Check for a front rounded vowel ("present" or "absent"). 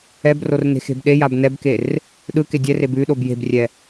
absent